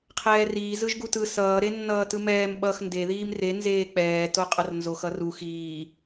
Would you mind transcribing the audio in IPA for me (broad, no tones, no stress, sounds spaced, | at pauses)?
qʰ ɛː r iː z ɯ ʒ ɡ u t ɯ s ʌː ɾ e nː ʌː t ɯ m ɛː m ɓ ʌ x n d e ð iː m r e n z eː k͡p ɛː t o qʼ ʌ r n z o x ʌ r u x iː